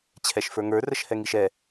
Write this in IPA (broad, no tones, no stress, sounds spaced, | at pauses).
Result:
t͡ɕʰ ɛ ʃ f ə˞ ŋ ə˞ r ə ʃ h ɛ ŋ i ʃ ɛ